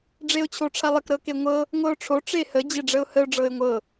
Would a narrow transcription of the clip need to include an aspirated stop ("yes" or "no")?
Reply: yes